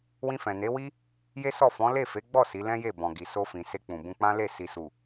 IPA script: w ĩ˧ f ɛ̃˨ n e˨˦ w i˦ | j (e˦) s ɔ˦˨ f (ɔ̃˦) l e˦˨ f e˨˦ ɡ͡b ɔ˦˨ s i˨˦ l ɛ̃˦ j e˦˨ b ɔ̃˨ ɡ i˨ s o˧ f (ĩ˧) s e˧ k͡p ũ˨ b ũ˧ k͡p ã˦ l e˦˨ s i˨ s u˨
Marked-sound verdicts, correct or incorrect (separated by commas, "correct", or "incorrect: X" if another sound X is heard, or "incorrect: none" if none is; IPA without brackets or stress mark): correct, incorrect: ɔ̃˨˦, incorrect: ĩ˨